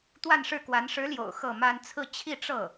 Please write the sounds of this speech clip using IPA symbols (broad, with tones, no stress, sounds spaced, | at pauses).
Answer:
t̪ w a˥˧ n ʂ ɻ̩˥˩ k w a˧˥ n ʂ ɻ̩˧˥ l j o̰˨˩ ʊ̯ x ɤ˥˩ m a˥ n t͡sʰ ɹ̩˥˧ t͡ɕʰ i˥˧ ʈ͡ʂ ɤ˥˩